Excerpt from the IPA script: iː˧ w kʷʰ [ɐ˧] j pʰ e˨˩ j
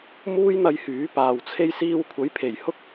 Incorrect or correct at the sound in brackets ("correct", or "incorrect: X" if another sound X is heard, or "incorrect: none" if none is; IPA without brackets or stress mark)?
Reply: incorrect: ɐ˨˥